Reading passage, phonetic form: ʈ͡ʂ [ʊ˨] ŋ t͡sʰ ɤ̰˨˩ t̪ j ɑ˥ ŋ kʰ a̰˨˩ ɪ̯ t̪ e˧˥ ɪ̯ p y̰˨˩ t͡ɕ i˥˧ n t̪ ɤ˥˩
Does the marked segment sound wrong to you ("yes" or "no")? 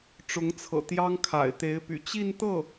yes